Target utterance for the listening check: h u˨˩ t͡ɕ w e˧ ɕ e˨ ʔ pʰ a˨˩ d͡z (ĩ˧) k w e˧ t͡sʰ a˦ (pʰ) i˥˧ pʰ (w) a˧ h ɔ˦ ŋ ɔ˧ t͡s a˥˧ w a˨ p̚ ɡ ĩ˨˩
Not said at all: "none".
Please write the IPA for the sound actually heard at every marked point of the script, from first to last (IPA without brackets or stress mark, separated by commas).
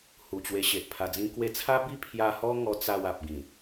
ĩ˧, b, j